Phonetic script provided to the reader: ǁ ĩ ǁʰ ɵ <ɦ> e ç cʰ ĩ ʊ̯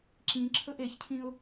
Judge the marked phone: incorrect: ʔ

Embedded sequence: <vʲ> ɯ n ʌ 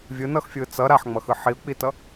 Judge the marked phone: correct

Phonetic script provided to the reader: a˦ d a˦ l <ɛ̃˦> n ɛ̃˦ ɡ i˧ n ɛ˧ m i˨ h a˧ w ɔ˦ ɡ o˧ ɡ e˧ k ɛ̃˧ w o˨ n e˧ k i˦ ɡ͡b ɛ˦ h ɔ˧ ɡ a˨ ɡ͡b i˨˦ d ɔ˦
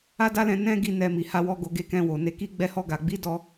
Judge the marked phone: incorrect: ɛ̃˧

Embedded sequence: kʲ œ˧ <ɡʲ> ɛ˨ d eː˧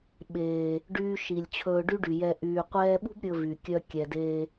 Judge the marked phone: incorrect: kʲ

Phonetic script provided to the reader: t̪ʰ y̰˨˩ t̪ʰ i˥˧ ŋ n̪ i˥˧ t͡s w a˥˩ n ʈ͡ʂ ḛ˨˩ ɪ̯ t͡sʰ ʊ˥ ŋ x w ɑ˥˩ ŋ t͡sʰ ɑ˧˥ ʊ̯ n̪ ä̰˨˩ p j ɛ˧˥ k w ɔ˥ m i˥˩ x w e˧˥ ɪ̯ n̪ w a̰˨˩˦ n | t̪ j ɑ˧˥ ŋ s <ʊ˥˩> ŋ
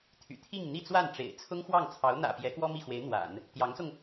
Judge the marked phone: incorrect: ʊ˧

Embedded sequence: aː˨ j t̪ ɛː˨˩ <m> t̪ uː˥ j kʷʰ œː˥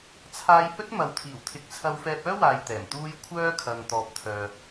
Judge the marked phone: correct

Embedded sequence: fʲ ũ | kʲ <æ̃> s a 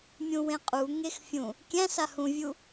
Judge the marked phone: correct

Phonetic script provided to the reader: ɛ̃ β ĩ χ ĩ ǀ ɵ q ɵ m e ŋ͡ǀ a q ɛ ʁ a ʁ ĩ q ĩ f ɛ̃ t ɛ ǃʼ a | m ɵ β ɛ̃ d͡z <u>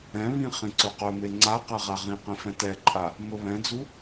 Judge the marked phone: correct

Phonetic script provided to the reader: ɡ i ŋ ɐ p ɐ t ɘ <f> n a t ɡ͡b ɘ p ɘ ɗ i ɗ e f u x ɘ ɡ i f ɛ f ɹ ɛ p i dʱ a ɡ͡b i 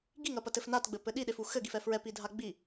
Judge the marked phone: correct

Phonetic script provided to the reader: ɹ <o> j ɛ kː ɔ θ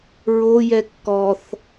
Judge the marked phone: correct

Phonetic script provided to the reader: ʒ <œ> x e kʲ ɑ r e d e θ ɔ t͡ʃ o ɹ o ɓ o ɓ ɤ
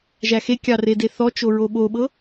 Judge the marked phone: incorrect: æ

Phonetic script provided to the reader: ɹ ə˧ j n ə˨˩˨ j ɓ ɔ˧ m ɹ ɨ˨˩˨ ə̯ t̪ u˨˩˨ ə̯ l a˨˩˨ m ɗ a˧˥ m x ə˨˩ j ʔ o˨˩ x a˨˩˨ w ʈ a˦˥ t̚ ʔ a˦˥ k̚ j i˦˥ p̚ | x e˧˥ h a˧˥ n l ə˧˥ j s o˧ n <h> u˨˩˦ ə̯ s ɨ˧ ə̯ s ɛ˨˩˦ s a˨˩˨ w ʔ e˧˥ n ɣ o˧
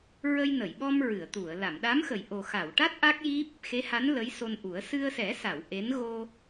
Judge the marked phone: incorrect: ʔ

